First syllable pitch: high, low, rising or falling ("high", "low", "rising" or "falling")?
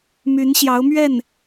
rising